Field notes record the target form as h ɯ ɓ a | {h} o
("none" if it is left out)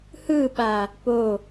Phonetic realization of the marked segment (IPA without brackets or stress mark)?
p